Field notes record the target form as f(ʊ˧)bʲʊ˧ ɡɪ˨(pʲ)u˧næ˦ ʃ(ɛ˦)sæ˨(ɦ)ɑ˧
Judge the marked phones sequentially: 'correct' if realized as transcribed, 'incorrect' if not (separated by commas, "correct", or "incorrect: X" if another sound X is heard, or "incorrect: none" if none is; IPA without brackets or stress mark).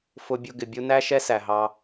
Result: correct, incorrect: bʲ, correct, correct